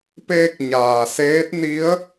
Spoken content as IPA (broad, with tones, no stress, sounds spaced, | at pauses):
p eː˧ k̚ ɲ aː˩ s eː˧˥ t̚ n i˧˥ ə̯